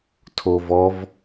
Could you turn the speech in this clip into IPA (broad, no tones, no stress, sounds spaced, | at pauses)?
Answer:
tʰ o v ɔ v